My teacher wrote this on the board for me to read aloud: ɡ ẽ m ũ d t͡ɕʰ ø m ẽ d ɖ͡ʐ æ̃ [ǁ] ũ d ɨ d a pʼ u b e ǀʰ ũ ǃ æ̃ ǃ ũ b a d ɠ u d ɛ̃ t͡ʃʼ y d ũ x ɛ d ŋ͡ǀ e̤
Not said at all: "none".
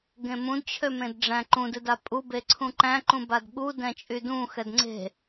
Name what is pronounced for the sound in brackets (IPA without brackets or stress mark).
ǃ